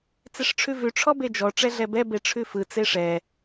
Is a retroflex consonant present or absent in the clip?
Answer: present